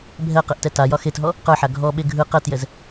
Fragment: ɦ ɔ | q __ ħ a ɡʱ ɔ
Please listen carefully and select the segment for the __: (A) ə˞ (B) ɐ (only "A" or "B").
A